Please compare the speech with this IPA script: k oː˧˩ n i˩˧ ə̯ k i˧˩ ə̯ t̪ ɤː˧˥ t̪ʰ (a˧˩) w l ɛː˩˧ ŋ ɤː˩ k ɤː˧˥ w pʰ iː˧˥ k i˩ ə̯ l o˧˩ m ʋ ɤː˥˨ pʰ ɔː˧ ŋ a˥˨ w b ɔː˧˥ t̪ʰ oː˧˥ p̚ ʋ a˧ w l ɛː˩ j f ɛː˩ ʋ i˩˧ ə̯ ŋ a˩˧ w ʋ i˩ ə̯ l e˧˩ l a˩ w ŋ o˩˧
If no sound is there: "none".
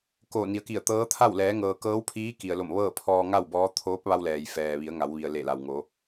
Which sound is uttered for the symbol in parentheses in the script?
a˥˨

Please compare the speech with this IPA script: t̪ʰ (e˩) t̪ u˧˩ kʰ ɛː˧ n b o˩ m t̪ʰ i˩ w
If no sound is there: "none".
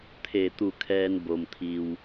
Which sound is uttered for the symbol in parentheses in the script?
e˧˩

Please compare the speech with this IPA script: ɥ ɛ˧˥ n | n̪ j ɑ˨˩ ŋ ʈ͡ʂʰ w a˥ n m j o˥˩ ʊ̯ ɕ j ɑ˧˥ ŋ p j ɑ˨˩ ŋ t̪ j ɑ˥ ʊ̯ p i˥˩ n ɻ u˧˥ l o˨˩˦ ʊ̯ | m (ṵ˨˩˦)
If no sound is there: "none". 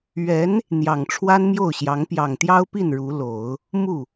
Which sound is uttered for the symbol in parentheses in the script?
u˥˩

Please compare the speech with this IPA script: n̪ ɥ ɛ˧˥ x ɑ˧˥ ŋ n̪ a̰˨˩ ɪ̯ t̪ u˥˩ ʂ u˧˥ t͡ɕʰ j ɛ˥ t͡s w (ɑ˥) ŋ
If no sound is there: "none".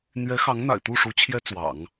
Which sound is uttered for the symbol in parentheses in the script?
ɑ̰˨˩˦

